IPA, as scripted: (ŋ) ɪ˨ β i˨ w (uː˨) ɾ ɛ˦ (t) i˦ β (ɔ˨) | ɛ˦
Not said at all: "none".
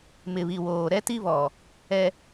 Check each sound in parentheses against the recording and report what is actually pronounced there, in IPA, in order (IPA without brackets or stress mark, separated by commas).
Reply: m, oː˨, t, ɔ˨